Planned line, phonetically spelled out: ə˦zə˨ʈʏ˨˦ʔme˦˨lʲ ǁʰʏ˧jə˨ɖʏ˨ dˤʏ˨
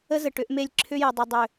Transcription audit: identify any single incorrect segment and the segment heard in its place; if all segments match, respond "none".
ɖ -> dˤ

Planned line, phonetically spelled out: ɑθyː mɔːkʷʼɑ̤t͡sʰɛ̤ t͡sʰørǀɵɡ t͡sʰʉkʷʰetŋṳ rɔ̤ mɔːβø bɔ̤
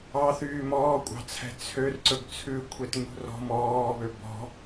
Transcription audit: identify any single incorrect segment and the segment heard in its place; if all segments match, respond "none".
none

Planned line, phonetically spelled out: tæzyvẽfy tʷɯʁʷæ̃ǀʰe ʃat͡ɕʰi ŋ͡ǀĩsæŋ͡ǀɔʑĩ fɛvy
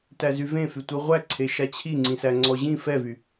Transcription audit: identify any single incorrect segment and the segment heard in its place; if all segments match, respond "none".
æ̃ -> æ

